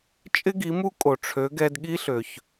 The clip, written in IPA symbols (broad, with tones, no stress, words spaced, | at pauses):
t͡ʃʼɪ˥ɡi˩˥ mu˥kʼo˩ ʈ͡ʂʰø˩˥ ɡɛ˧dɠi˥ɬø˩ç